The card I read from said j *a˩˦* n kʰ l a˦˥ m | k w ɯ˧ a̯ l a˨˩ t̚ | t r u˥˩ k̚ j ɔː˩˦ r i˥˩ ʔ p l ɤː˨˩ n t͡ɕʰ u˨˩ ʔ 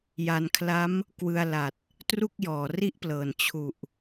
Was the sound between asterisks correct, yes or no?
no